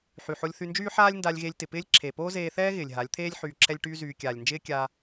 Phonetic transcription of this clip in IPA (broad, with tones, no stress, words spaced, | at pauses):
ħy˨ ħo˧lʲθy˧nd͡ʒyː˦ ħaː˦lʲnda˧lʲ ɣe˧lʲtɪ˨pɪː˦lʲ ǁʰe˨poː˦zeː˧θɛː˦ ɣɪː˨lʲɦa˨˦lʲt̪ʰeː˦lʲ ħyː˧ǁʰɛ˦lʲʈyː˦zyː˧ kʲaː˨lʲnd͡ʒɪː˦kʲaː˧